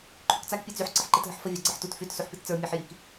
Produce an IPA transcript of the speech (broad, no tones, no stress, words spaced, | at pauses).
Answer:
ǃʰykt͡sak pʲet͡syħ ǀəħǃetɦəħfə vʲaɡ͡ǀəħtut fyt suħpitt͡sə˞ mʲæħjik